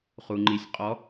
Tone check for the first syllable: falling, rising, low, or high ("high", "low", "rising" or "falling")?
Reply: low